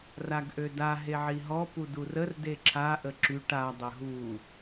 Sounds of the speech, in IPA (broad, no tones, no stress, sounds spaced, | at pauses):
r a ɡ ʔ ø d a ɦ e ʕ i ɦ ɔ p u d u r ə r d e ǁʰ a ʔ ə ǁ y ʈ a dˤ ə ɦ u